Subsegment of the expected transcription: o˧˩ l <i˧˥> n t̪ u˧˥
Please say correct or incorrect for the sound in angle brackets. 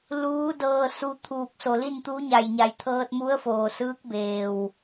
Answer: incorrect